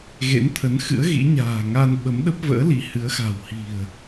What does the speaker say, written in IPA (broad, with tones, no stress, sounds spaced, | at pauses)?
ɣ ḛ˧˥ n t̪ʰ ə˨˦ n x ɨ̰˧˥ ə̯ ɣ ḭ˧˥ ɲ a̤ː˨˩ ŋ a˧ n ɓ ə˨˦ m ɗ ə˦˥ p̚ v ə̰ː˧˥ l i˨˦ h ɨ˨˦ ə̯ x a̤˨˩ w h i̤˨˩ ə̯